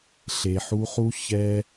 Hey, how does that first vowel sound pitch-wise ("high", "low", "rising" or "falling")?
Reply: low